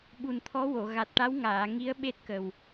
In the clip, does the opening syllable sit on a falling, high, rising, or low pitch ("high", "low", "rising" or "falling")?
low